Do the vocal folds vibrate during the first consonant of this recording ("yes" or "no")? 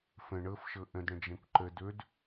no